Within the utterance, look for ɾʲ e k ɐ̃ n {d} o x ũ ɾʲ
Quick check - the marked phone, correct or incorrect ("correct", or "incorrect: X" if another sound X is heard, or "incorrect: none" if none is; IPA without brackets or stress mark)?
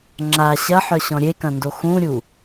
correct